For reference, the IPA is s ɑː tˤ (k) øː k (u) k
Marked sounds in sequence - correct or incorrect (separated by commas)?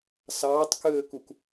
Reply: correct, correct